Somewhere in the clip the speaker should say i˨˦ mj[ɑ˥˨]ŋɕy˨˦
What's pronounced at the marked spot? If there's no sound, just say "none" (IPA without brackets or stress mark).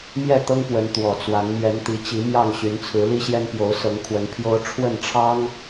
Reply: ɑ˥˨